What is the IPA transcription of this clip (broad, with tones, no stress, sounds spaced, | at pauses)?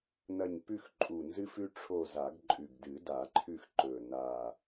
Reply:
n ɐ˦˨ ɲ p ʉ˦˨ x ǃʼ u˨˩ n z ɨ˦ f ʉ˦ ʈ͡ʂʰ o˦˨ z a˨˩˦ ɡ ǃʼ ʉ˨˩ ɡ d ɨ˨˩˦ d a˨˩˦ ǃʰ ʉ˦˨ x ǃ ɵ˨˩ n a˨˩